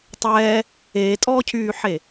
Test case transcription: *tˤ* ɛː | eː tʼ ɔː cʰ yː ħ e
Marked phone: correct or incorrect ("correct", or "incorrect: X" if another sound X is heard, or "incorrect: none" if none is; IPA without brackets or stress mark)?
correct